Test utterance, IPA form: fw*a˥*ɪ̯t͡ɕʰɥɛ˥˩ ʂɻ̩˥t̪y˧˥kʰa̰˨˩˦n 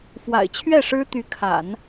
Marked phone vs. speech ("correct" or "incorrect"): incorrect